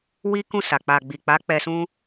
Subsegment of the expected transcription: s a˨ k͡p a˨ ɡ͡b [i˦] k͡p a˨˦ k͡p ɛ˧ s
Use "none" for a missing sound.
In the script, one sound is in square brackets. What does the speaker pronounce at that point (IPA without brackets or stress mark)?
i˨